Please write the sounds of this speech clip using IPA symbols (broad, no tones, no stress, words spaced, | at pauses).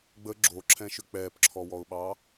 ɡ͡bə ɡ͡ǁoǁʰɛ̃ʃʏ k͡pɛːpǁʰɔwɔʊ̯ɓɑ